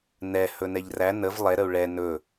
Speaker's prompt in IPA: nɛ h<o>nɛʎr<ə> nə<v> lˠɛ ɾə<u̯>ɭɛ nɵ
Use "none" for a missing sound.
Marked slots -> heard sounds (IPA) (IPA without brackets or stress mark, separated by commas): ɵ, æ, v, u̯